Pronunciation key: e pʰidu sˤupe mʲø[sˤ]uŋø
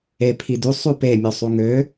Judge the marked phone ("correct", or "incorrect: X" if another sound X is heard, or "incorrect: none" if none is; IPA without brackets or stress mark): correct